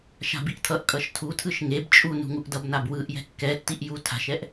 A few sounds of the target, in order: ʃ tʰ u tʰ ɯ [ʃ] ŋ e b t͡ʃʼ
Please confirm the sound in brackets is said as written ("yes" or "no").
yes